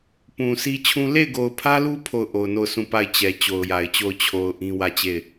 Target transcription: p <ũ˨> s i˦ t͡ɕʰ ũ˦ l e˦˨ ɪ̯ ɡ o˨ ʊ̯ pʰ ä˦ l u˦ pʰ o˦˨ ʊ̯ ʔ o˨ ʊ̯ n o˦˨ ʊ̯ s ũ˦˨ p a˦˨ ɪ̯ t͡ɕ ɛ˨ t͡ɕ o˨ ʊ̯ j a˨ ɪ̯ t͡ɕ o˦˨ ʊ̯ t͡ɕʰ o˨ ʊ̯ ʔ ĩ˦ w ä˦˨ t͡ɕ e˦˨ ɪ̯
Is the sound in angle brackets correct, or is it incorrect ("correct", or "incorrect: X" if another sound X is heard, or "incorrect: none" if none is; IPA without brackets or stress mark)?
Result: correct